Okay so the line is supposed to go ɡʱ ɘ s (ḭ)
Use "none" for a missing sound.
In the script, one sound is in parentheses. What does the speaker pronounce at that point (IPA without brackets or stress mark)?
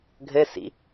ḭ